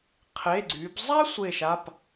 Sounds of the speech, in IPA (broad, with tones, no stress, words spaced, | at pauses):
qʰe˩˧˩ɡ͡ǀy˩˧b zˤa˥ sʷe˧˩ʃa˩˧˩p